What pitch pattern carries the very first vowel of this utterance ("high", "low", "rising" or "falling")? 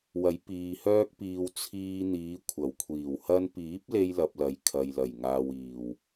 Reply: rising